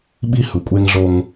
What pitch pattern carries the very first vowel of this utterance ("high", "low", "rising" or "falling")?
high